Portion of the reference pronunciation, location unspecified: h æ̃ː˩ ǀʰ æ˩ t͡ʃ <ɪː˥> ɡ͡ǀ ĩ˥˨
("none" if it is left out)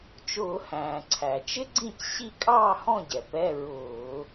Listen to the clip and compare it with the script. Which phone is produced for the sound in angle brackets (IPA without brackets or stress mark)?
ɪ˥